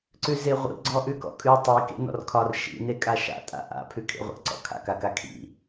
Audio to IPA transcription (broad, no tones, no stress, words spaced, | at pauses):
ǀʉzeʁʷḭ ɡ͡ǀɔʔʉkɔ̰kʼʉ tˤi kḛnɔ̰rkʰɒr ʃḭ nekʼaʃa̰ tʼa̰ʔa̰ pʰʉkʰḛʁʷḛ ǀɔ̰kʰa̰k akakʰḭ